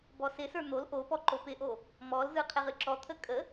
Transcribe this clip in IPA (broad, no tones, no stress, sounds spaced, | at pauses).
b ɔ s ɪ s ə˞ n̪ o l ʔ o p ɔ ǃ o p ɪ ʔ o | m ɔ l z ɯ qʰ ɪ ʁ ɨ ǁ ɔ t̪ʰ ə kʼ ə